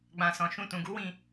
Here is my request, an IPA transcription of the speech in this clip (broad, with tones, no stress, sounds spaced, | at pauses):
ɡ͡b ã˨ s ɔ̃˨ ʃ ũ˧ t ũ˨ ɡ u˨˦ w ĩ˦˨